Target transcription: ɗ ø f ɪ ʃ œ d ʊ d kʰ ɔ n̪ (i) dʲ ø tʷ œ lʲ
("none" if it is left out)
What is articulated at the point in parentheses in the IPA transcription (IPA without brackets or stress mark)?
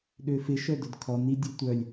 i